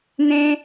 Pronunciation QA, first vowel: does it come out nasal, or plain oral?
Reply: nasal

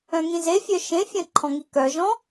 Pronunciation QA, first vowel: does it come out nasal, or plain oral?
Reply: nasal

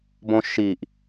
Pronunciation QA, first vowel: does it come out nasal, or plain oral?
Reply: nasal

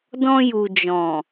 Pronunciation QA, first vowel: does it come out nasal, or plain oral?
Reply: nasal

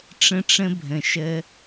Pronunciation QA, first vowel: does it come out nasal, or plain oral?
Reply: nasal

